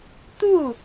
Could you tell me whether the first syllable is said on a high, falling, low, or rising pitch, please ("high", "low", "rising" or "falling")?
falling